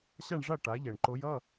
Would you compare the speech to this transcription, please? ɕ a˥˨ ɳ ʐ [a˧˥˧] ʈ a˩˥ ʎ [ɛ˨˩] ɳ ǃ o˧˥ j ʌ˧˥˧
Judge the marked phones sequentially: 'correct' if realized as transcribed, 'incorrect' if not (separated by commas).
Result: incorrect, correct